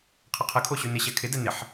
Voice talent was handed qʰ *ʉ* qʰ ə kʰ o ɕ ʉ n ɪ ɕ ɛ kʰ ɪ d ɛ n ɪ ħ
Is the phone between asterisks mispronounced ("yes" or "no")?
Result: yes